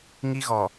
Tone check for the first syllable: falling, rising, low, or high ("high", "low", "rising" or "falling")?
high